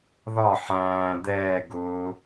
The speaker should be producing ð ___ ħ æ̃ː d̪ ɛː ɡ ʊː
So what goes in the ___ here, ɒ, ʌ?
ɒ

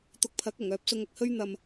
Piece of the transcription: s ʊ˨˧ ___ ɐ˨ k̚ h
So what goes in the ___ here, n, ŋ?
ŋ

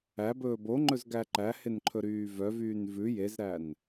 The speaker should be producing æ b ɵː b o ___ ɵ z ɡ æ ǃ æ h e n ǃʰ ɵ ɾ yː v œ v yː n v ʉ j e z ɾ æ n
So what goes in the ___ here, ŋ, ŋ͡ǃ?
ŋ͡ǃ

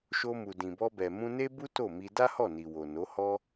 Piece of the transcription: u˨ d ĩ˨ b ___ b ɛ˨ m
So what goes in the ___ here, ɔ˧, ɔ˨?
ɔ˧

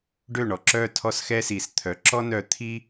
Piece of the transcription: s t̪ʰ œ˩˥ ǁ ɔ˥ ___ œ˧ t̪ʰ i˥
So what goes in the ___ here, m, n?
n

